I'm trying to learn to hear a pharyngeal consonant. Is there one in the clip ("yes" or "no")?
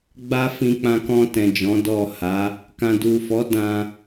no